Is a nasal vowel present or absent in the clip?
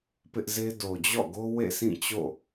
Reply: present